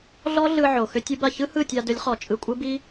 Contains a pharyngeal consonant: yes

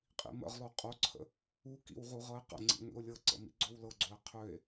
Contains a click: yes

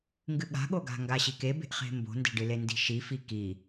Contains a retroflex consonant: yes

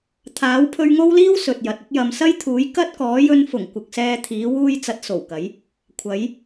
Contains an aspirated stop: yes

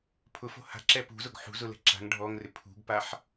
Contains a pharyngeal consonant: yes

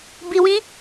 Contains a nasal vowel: yes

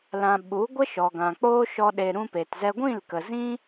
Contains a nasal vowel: yes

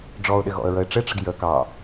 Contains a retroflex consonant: yes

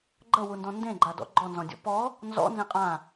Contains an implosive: no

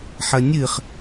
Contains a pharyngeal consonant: yes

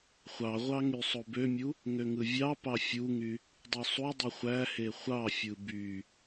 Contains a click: no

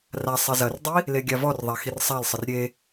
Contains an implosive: no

